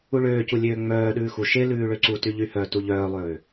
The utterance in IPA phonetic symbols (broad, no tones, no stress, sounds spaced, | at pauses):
u ɭ øː c u lʲ øː ŋ͡m œː ɗ ʉː x u ʃ e l ʉː ɭ ø ǀ u t y ʎ y h œ t u ʎ œː lˠ øː